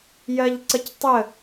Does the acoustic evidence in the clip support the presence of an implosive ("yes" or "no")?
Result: no